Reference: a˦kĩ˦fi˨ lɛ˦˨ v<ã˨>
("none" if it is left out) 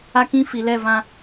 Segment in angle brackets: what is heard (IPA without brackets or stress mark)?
ã˦